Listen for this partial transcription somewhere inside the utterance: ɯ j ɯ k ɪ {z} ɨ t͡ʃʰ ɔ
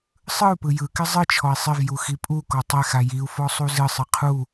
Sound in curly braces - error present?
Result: yes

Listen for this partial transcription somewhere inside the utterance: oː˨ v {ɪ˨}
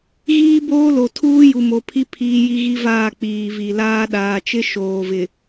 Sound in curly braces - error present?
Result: no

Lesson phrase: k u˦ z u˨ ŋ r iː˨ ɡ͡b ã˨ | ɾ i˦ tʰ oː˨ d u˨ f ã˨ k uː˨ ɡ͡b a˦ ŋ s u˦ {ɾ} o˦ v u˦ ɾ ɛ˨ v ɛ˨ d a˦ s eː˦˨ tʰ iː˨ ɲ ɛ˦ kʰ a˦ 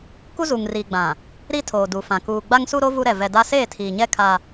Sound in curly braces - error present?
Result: no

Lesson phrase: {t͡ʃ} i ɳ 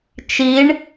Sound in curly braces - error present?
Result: no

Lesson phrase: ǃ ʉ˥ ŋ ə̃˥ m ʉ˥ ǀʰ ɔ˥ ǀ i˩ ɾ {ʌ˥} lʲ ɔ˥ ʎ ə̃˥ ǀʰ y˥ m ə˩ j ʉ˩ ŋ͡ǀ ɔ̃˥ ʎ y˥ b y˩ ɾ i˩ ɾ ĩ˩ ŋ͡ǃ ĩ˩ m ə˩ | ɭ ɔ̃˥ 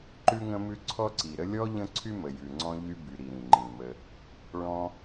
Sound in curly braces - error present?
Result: yes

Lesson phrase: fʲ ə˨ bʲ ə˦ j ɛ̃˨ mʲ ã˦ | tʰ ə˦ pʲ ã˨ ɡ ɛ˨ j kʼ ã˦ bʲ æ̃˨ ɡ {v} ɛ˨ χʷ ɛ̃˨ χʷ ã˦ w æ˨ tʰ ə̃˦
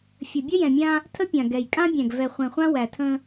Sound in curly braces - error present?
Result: no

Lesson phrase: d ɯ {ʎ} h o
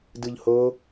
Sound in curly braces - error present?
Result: no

